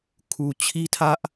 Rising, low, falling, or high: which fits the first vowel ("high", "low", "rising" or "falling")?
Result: low